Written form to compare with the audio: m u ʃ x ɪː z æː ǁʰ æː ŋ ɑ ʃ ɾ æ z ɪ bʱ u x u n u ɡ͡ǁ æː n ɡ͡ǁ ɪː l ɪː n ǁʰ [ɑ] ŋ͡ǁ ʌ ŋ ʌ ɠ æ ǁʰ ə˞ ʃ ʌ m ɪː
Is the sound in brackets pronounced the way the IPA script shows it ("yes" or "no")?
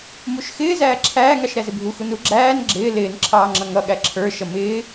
no